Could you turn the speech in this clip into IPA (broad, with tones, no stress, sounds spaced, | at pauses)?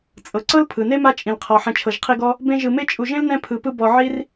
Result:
t͡sʼ ɤ˩ ǀ ɤ˥ l pʰ ɯ˩ n e˥ m a˦ t͡ʃʼ ĩ˩ l qʰ ɔ˩ ħ ɛ̃˨ t͡ʃʰ ɤ˩ ʒ qʰ i˦ ɡ ɔ˥ | b ẽ˦ ʒ ɯ˨ m e˥ t͡ʃʼ u˨ ʒ ẽ˥ l n ɛ̃˦ pʰ ɯ˨ p ɯ˦ b ɔ˨ ʕ i˥ r